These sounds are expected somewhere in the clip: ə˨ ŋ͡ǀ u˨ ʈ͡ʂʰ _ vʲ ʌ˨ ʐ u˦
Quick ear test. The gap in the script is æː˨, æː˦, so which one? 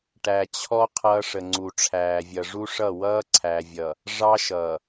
æː˨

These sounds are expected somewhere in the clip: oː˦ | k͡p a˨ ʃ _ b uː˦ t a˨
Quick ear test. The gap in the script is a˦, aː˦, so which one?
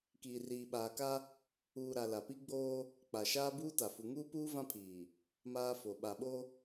aː˦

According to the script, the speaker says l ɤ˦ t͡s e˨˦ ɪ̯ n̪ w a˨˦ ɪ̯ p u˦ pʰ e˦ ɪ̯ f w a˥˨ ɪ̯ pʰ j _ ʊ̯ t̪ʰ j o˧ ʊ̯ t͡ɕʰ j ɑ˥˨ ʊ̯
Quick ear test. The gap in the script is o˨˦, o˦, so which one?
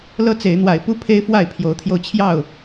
o˨˦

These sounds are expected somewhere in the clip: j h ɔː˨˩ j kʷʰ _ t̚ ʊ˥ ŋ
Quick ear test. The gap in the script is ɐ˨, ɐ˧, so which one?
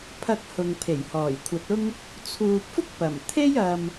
ɐ˨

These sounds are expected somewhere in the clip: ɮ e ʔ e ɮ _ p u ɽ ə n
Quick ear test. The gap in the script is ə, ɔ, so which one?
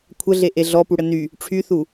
ɔ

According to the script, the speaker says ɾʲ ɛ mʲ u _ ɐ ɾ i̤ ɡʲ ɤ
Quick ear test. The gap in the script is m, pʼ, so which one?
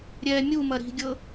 m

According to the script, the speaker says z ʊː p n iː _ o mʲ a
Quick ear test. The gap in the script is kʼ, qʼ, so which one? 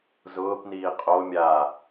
qʼ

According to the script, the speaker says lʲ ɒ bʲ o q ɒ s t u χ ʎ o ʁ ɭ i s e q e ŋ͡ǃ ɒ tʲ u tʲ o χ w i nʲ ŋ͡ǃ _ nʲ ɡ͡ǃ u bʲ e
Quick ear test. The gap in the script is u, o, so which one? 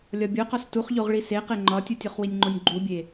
o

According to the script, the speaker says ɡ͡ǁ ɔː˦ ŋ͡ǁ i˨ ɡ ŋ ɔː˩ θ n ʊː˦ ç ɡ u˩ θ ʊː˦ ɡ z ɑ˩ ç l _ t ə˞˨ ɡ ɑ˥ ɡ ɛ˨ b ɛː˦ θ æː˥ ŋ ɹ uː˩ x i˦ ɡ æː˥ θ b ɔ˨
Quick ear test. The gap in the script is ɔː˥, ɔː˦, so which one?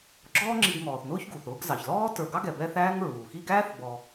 ɔː˥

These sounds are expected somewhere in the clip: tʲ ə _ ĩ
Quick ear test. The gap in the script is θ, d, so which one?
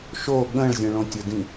d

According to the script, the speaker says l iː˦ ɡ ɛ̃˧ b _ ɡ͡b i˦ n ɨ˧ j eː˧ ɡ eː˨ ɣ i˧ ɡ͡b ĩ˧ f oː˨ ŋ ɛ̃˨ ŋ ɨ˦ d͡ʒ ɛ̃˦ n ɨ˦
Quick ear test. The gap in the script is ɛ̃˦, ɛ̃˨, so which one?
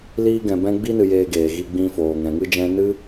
ɛ̃˦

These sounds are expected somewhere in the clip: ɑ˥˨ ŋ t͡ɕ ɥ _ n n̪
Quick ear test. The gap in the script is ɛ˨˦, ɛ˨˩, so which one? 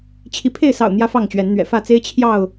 ɛ˨˦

